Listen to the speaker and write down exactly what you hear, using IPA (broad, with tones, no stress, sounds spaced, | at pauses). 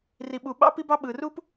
r i˩ ɓ u˩ ɓ ɑ̰˥ p i˥ b ɑ˥ ɓ ɯ˩ r u˥ p